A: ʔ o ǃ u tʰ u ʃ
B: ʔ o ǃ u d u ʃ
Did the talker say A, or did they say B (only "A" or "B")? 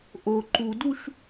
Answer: B